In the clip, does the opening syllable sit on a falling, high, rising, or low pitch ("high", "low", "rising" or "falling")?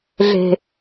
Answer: low